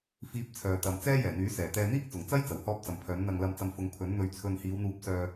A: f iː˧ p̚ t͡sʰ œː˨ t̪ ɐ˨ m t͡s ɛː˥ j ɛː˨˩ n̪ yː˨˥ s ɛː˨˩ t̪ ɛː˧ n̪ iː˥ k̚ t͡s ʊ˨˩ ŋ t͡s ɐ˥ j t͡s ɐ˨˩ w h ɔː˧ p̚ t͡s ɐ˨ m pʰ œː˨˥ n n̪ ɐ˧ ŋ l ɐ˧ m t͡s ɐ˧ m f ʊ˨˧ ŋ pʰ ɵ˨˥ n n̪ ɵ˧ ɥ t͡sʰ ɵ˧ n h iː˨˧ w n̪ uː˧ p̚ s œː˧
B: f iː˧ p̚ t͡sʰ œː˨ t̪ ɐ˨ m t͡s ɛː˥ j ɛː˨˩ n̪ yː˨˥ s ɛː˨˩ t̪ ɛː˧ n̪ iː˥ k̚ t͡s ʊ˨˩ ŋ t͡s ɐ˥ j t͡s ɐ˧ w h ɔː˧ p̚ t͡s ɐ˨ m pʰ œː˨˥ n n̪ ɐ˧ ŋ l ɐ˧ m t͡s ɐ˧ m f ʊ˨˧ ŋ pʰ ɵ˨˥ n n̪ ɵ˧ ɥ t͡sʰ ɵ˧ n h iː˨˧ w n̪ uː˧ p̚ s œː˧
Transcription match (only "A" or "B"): A